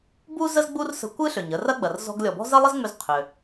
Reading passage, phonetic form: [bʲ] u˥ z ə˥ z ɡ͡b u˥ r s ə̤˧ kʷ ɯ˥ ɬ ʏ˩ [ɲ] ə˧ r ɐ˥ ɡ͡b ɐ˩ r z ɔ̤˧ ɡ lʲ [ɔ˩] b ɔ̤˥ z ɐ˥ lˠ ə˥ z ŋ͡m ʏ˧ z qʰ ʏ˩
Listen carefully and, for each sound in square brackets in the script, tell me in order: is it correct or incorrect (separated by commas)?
incorrect, correct, correct